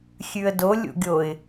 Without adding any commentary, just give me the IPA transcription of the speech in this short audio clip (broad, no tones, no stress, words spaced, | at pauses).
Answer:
xʲʉə̯dolʲṵ ɡʲoɪ̯